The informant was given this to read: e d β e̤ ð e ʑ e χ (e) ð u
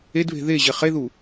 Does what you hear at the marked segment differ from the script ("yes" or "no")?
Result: no